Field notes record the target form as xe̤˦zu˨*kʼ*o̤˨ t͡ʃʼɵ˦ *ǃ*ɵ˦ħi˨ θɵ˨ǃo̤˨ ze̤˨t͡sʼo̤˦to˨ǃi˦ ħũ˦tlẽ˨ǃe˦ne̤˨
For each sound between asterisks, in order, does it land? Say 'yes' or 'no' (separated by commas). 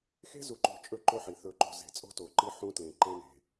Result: no, yes